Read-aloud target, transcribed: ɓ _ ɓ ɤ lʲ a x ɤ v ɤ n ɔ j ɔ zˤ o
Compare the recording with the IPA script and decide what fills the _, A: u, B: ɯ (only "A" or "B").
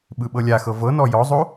B